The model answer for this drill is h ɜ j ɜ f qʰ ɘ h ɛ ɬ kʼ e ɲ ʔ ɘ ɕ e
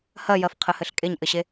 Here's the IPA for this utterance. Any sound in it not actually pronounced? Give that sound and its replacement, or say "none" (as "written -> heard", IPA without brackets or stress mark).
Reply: ɛ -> ɘ